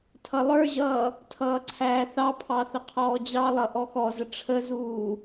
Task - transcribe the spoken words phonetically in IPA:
tʰʌlˠə˞ʑʌː | tʰʌːǀʰæːθɑpʰɑ θɪqʰɔːd͡ʑɑlˠʌ ʔɔxɔzə ʈ͡ʂʰəzuː

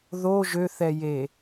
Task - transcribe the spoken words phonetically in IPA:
ðo ʒøθɛje

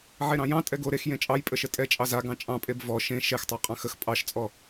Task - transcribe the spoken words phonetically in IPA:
ʕeɾɑ̃jɑ̃ tʼɛɡo ɾex jẽt͡ʃʼɑjpʼəʃə tʼɛt͡ʃʼɑz a ɡɑ̃t͡ʃʼɑ̃pʼeb vɔ ʃẽ ʃɛxtˤa qʼɑ̃xəx pʼɑʃt͡sʼɔ

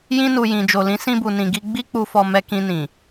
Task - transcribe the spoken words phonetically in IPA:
jĩ˧nu˨ jĩ˨d͡ʒo˨lĩ˨˦ sĩ˧bu˨nĩ˨ ɡi˧ ɡ͡bi˦k͡pu˧fɔ˧mɛ˧ kĩ˧nĩ˨

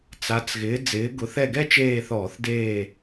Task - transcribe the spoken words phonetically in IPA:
t͡sa˨˦t͡sɣɪː˨˦ d͡zɪː˨˦ɡʊ˨˦ θɛ˦˨ɡɛ˥t͡ʃeː˦˨θɔː˧˩˧θ deː˦˨

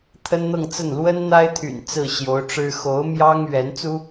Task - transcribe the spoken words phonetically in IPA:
t̪ʰə˥nn̪ɤ˥˧ŋt͡sə˥˩n lwə˥nn̪a˥ɪ̯t̪ʰy̰˨˩n t͡sɹ̩˥˩ɕjo˧˥ʊ̯ʈ͡ʂɻ̩˥ xo˧˥ʊ̯mjɑ˥ŋɥɛ˧˥nt͡su˥

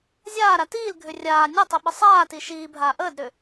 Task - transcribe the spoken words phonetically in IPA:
zʲaːɾa tiːlɡʱʏ rʲaː nʲətˤi ɓəsˤaːti ʃiːbʱaː ʔəːdɾʏ

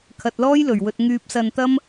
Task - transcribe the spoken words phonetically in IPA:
kʰɐ˧t̚lɔː˥jlɵ˨ɥwɵ˧t̚ ŋyː˧p̚sɐ˧nt̪ɐ˥m

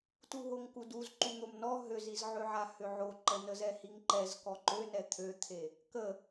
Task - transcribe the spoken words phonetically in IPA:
tuɦoŋkuduz ǃun̪omnɔ ɦøzizʕøʕa høʕoǃə nəzɛhiŋǃɛz kɔǃønɛ t̪ʰøt̪ʰe | kə

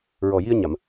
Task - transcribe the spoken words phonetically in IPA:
ɹɔ˨˩ji˧ə̯ɲa˨˩˨m

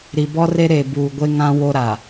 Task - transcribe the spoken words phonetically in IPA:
ɾi˨bɔ˦re˦ ɾe˨ buː˨ɡʷe˦ ŋã˦wo˦ɾa˨

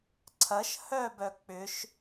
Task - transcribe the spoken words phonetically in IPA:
ǀʰɐʃ hœbœ k͡pʏʃ

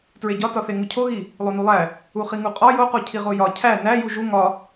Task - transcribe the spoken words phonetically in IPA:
tɹeɟɒtɒθe ŋucʰoɣi | lˠonulˠæ | uχiŋuqʼɒ joqo cʰiʁojɒ cʰæ næju ʒu ŋɒ

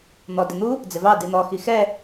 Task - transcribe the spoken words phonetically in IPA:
n̪ɔ dɪn̪u | d͡zɪvɑ din̪ɔ xixɛ

